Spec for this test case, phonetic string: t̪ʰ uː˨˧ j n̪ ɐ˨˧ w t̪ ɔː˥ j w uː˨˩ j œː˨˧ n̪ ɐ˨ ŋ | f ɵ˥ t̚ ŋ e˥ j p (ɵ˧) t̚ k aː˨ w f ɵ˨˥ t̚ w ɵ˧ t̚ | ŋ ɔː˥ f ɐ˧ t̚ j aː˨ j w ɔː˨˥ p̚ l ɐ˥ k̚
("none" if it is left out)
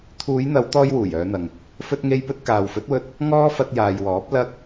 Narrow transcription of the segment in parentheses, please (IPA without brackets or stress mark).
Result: ɵ˥